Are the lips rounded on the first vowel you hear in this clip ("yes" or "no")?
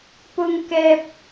yes